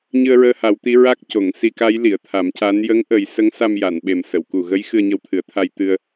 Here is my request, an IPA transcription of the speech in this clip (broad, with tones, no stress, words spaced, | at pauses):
ɲɨ˧ə̯ɹəː˧ha˨˩˦w t̪i˧˥ɹa˦˥k̚co˨˩˨ŋ si˧ka˧˥j li˨˩˨ə̯t̪ʰa˨˩˦mca˧˥n jə˧˥ŋʔə˨˩˦j sə˧˥ŋsa˧mja˨˩˨nɓe˨˩m sə˨˩˨wku˨˩ɣə˧˥j xɨ˧ə̯ɲə˧wt̪ʰɨ˨˩˦ə̯t̪ʰa˧j t̪ɨ˧ə̯